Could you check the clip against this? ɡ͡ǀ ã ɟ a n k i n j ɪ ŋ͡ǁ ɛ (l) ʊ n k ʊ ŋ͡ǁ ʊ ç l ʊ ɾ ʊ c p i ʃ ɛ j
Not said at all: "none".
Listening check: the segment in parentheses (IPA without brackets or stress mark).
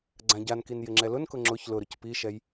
l